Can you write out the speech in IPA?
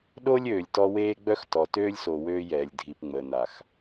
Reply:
ɗ o˦ lʲ øː˨ lʲ t ɔ˦ w eː˦ ɡ͡b œ˦ x t ɔ˨ t øː˦ lʲ s o˨ w øː˦ j ɛː˨ lʲ dʱ i˨ p ŋ͡m əː˨ n a˨ x

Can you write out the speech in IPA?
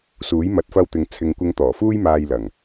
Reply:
s uː˨˥ j m ɐ˨˥ t̚ f ɐ˧ w t̪ ɪ˨ ŋ t͡sʰ ɪ˨ ŋ kʷ ɪ˨˧ ŋ t̪ ɔː˨˩ f uː˥ j m aː˧ j l ɐ˨˩ ŋ

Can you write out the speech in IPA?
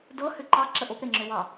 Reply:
d ɤ h ʏ ǃ ɑ ǁ ə ʔ o p ɾ e ŋ͡ǁ ʏ w ɑ

